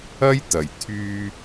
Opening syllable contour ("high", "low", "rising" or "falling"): high